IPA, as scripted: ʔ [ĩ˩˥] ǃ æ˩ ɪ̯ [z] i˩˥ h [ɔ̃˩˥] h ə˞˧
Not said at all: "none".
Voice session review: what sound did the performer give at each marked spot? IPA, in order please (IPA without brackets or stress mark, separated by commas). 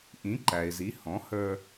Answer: ĩ˩˥, z, ɔ̃˩˥